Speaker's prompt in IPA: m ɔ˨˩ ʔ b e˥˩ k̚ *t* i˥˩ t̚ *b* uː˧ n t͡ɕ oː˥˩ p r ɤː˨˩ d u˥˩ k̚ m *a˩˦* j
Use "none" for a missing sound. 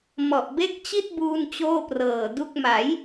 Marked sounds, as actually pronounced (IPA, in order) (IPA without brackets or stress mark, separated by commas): t͡ɕ, b, a˩˦